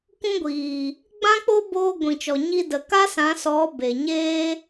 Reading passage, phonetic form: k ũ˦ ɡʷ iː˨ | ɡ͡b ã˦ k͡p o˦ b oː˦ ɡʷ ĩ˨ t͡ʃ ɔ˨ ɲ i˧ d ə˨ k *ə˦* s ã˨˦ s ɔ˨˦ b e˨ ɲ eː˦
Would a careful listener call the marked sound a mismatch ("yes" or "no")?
yes